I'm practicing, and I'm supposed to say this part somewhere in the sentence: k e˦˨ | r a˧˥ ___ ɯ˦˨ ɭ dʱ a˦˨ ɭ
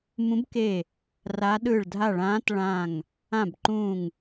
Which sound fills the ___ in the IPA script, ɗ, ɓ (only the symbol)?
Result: ɗ